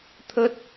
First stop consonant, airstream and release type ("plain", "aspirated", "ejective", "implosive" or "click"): aspirated